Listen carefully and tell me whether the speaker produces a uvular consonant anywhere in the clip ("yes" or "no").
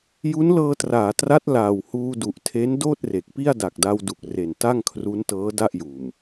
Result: no